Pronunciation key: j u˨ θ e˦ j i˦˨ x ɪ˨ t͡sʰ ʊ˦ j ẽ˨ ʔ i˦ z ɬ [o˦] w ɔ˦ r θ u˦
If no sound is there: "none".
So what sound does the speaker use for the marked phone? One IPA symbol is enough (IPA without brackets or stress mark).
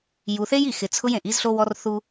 o˦